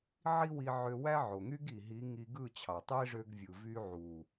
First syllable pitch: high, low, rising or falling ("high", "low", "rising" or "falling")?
high